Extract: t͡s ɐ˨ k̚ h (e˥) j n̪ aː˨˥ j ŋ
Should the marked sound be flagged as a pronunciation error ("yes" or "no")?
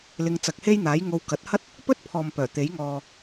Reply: no